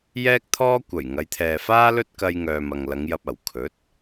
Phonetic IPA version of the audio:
jɛː˥k̚t̪ʰɔː˥ kʷɐ˨˩j ŋɐ˨˧jt̪ʰɛː˨faː˥lɵ˥t̚ kɐ˧j ŋœː˨mɐ˨ŋlɐ˨˧ŋjɐ˧p̚ ɐ˨˩w kʰɵ˨˥t̚

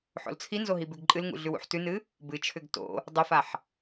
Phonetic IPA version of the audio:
ħo̰lt͡sʰinzo ɦibʉɡǃʼɨlŋṵ ɮʉwṵħtʉnɨ | bɨt͡ʃʰʏɡ to̰ | dˤʏfaħ

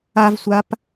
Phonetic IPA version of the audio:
avsʷap

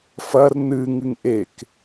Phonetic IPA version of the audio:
fɐr nɨ ŋɨŋʔek

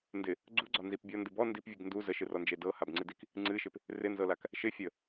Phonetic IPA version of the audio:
ndɪ | ɡ͡ǀuɡ͡ǀɒnzip bʲɔndɨ bɔ ndipvʲɨɡ ndu zəʃɨrɔnd͡ʒe dɤhabŋ͡ǀɨdik | ŋ͡ǀɨʃɪp | rɪnzɤlak | ʃɪ fʲə

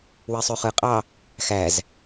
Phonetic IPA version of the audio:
wesˤyχɯqʼɑ | xæz

